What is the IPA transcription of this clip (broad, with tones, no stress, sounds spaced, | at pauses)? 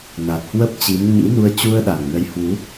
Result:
n a˨˩ t̚ h w ə˦˥ p̚ t͡ɕ i˨˦ m ɲ ḭ˧˥ n u˧ ə̯ t͡ɕ u˧ ə̯ ɗ a˨˩ ŋ n ə˨˦ j h w u˨˦